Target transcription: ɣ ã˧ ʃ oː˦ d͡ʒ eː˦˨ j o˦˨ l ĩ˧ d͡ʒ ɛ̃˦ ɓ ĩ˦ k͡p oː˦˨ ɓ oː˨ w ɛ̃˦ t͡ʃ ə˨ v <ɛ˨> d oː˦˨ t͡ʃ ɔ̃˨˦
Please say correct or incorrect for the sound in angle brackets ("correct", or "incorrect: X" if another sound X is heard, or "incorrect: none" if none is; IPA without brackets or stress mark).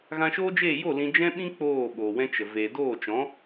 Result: incorrect: e˨